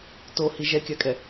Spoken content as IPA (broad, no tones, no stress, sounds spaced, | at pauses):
t o h i ʒ ɛ kʲ a kʼ ɛ